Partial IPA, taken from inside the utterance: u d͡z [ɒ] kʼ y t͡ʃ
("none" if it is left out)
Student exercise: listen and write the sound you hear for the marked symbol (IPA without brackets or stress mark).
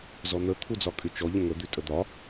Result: ɒ